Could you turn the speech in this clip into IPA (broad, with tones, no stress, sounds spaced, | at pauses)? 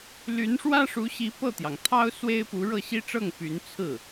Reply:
l y˧˥ n ʂ w ä˥ ʂ u˧˥ ɕ i˧˥ p ɤ˥˩ t̪ j ɑ˩ ŋ t̪ʰ ɑ˥ ʊ̯ s w e˥ ɪ̯ p u˧˥ ɻ ɤ˥˩ ɕ i˥ ʈ͡ʂ ɤ˥˩ ŋ p y˧˥ n t͡sʰ ɹ̩˥˩